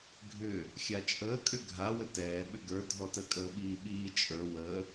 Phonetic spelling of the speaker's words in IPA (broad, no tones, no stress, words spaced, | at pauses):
ɡʱʏ | xʲat͡ʃʼəː kʼʏɡʱa wətɛː ɓʏɡə˞ dʱɔtə kʼəːɓiːɓiː t͡ʃʼə˞ wə